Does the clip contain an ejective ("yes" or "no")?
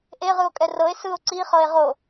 yes